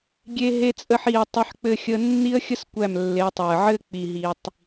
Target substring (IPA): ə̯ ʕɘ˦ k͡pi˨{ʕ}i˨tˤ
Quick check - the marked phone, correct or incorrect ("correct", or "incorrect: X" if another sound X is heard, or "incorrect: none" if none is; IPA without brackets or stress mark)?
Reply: incorrect: ɦ